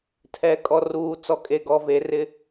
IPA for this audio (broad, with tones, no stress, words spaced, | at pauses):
tʰɛ˨kʼɔ˨ ruː˨t͡sɔ˨kʼe˨ ɡɔ˨ ve˨rɪ˦